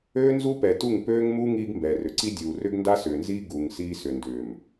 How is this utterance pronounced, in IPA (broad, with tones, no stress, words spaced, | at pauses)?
øː˦nzu˦pɛ˨tu˦˨ŋ pøː˦ŋmu˦ ŋiː˦ɡmbɛː˨rʏ˨ ǀi˦dʲuː˨ rʏ˦ɡnda˦sʏː˨nziː˦ ɡu˨ŋsiː˦ sʏ˨ndʏː˨m